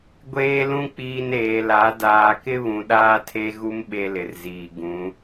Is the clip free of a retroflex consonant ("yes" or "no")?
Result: yes